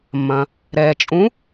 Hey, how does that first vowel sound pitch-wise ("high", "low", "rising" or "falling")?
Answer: low